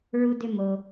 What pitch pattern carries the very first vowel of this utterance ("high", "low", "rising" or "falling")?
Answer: low